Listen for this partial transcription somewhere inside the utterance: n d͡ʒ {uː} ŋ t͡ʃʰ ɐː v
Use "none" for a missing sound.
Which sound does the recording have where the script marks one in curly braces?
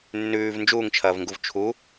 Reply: uː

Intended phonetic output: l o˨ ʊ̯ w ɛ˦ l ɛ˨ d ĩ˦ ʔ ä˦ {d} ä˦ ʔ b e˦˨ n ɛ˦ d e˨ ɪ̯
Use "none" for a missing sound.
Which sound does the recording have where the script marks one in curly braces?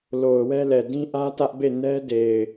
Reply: t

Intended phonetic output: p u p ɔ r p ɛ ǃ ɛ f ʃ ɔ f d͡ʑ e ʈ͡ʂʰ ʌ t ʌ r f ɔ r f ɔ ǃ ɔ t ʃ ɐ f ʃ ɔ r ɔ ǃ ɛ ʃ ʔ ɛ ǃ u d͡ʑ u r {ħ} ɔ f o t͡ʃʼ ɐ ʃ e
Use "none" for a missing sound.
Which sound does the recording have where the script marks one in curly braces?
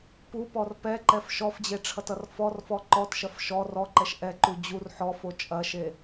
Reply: ħ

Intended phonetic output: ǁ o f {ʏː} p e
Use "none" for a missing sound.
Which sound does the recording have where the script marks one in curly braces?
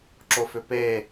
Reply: ʏ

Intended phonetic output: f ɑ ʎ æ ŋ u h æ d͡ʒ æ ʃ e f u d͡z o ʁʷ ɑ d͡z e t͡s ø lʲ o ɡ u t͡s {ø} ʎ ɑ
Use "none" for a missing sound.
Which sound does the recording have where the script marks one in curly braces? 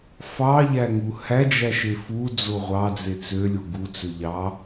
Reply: ø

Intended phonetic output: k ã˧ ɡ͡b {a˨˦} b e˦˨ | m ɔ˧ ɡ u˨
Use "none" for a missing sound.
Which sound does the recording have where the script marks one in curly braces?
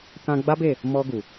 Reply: a˦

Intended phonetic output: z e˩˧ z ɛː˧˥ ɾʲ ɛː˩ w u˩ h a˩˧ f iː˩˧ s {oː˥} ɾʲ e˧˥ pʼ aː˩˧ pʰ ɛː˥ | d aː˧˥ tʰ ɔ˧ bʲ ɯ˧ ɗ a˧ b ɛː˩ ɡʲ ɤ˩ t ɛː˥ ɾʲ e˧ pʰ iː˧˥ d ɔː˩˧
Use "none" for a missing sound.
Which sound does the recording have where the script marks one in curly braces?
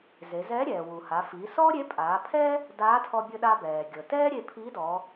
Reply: ɔː˥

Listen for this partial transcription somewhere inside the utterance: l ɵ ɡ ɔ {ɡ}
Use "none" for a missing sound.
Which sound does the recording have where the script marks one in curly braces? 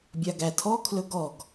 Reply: ɡ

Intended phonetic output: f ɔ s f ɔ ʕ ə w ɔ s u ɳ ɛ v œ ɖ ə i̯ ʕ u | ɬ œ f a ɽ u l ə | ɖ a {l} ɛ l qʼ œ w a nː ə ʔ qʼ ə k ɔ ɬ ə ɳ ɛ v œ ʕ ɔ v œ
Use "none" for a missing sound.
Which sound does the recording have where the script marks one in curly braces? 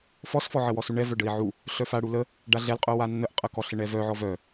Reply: ɮ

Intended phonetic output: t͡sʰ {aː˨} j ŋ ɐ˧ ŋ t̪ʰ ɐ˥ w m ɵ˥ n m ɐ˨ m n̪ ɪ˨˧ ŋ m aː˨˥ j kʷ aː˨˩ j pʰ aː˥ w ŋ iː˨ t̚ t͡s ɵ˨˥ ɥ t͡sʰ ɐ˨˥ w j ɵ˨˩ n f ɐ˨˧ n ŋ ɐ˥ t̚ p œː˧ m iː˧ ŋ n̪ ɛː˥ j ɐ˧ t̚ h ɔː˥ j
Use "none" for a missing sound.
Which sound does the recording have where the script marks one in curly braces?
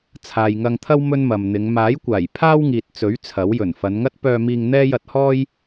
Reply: aː˨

